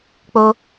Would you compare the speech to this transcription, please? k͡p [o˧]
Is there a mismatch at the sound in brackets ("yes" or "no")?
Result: no